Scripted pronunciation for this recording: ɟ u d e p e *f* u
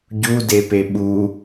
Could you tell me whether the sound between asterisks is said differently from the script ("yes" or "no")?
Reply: yes